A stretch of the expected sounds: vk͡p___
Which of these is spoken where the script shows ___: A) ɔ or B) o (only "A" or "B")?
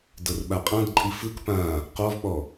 A